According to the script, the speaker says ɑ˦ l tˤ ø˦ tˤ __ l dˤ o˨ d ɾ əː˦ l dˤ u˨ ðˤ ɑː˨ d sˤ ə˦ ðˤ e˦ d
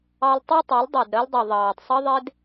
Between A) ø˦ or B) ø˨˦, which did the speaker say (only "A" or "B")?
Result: B